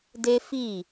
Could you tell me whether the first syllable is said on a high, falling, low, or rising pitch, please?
high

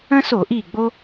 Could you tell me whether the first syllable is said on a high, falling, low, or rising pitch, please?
high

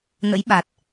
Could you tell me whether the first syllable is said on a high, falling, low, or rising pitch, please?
rising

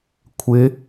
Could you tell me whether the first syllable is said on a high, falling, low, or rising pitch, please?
rising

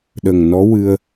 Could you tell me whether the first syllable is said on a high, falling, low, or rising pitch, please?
low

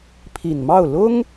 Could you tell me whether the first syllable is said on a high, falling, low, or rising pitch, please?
low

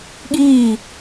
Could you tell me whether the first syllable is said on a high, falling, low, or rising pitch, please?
falling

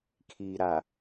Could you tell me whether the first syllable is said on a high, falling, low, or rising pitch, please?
low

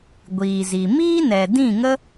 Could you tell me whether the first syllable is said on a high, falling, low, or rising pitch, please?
low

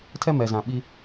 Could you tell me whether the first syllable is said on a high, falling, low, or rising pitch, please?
high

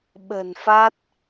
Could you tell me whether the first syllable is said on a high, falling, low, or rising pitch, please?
low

